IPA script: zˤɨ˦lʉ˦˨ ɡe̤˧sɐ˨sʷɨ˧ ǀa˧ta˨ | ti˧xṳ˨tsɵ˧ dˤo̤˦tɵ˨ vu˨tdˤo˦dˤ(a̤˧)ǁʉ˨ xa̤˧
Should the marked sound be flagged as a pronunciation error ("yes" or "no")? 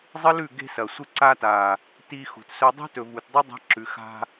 no